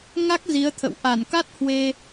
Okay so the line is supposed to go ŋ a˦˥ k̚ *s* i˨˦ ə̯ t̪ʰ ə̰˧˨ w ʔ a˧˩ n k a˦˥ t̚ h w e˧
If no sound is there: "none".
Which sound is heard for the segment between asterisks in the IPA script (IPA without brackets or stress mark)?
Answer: z